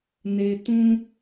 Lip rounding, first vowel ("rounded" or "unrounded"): unrounded